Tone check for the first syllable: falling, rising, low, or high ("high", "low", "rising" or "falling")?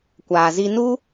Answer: low